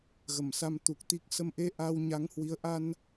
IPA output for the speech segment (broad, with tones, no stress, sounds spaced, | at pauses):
ɣ ə˧˩ m s a˧ m t̪ u˨˩ k̚ t̪ i˦˥ k̚ s ə˧ m ʔ e˧ ʔ a˧ w ɲ a˨˦ ŋ h w i˨˦ ə̯ ʔ a˧ n